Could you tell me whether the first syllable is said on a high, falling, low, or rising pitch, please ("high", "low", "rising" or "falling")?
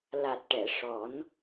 low